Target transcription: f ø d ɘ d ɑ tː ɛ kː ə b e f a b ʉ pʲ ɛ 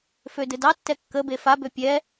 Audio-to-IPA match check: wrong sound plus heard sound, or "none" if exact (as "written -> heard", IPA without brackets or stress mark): ʉ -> ø